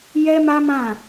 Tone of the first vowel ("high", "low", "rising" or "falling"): high